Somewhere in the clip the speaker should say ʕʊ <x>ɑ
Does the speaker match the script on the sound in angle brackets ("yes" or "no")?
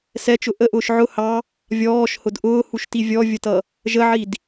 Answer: no